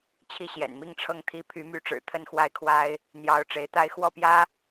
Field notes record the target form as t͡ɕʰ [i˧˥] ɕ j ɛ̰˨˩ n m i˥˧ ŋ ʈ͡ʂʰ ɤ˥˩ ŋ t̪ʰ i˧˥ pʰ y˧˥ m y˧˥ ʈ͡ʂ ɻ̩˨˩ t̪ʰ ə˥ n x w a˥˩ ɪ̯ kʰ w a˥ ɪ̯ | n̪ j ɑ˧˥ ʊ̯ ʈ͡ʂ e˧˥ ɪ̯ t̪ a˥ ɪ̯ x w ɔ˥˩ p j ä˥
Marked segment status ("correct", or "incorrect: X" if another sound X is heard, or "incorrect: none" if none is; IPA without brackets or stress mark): incorrect: i˥˩